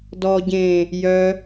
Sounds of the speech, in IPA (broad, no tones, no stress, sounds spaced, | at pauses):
d ɔ ɟ ẽː | j œ